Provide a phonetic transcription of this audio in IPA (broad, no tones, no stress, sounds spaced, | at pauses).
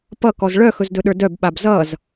p ʌ k ɔ z ɭ œ x ɵ z d ɵ ɗ ə˞ d œ b ɓ a b z ʌ z